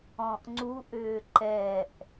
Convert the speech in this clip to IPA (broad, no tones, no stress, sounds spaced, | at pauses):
ɔ̃ ʔ ŋ͡ǀ u ʔ ʏː ǃ ɛ ʔ